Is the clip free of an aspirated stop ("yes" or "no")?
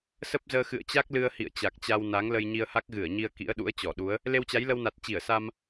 yes